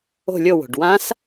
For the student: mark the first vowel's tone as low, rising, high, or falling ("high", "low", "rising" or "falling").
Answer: falling